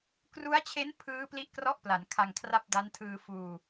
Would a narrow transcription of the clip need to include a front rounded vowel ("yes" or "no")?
no